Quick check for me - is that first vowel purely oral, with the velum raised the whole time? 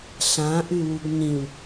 no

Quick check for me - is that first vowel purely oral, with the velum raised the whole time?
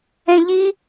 no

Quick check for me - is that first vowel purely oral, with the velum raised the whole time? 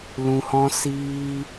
no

